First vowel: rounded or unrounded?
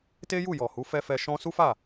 unrounded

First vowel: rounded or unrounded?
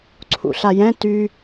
rounded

